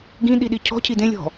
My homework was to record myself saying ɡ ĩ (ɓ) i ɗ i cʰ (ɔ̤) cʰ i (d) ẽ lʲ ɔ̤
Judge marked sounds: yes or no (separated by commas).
no, yes, yes